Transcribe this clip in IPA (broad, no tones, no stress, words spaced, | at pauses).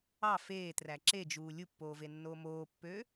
ɑ feːtræ ǁed͡ʒuː lʲupːoːvenːoː moːpːø